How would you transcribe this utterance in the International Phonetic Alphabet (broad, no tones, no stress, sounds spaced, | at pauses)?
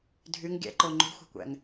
dʱ y ŋ ɡʲ æ̰ ǃ o ŋ͡ǃ ṳ xʷ æ̤ kʷ æ̰ ŋ